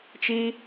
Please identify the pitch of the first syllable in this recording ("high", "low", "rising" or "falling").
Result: high